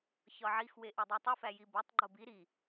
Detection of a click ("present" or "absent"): present